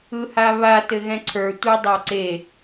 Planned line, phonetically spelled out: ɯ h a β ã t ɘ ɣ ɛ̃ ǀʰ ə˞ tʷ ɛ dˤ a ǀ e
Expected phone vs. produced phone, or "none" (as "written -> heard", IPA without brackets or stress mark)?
ã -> a